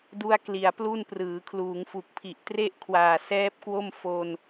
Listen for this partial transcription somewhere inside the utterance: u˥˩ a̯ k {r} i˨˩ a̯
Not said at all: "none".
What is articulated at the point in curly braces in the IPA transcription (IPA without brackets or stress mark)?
l